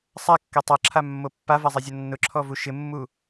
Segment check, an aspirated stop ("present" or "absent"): present